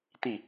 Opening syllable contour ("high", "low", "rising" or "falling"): falling